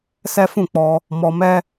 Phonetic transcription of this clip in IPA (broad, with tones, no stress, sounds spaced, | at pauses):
s ɛ˦ f ũ˦˨ k͡p ɔ˧ | m ɔ˧ m ɛ˦